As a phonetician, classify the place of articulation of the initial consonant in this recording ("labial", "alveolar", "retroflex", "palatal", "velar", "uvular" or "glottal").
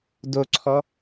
alveolar